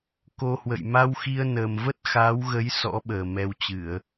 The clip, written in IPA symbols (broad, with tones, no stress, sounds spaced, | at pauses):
k o˧ h w ə̰˧˨ j m a˧ w x i˧ ə̯ n əː˨˩ m v ə˦˥ t̚ x aː˨˦ w ɣ ə˨˦ j s ɔ̰˧˥ ɓ əː˨˩ m ɛ˧ w t͡ɕ ɨ˧˩˨ ə̯